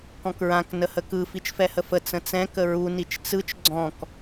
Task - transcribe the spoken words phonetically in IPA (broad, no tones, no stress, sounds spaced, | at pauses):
k ɔ̃ k ɹ ã k n ə h ə k ɯ f i t͡ʃ f ɛ h ə f ə t͡s ə̃ t͡s ɛ̃ k ə ɹ u n i t͡ʃ t͡s ɯ t͡ʃ ɡ͡ǀ ɔ̃ k